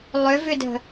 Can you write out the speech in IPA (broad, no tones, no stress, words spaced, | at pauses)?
lˠʏvʏdə̤